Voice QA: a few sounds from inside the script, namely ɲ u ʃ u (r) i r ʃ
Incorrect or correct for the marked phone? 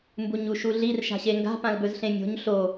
incorrect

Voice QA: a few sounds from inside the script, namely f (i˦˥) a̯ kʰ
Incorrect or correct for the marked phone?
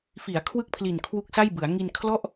incorrect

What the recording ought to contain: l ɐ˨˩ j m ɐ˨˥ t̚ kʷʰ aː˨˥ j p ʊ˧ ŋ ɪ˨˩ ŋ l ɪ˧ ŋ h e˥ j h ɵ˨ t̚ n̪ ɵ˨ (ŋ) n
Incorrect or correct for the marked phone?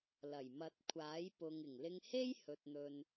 incorrect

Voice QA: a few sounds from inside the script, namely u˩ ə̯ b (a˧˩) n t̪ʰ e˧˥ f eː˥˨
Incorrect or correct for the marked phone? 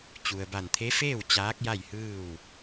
correct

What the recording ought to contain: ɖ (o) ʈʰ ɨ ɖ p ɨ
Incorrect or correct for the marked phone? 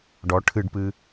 incorrect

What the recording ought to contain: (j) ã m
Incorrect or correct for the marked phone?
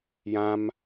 correct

